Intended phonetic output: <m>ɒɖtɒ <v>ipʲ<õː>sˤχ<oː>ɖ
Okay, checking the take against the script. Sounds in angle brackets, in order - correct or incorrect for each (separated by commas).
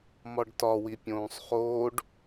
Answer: correct, incorrect, correct, correct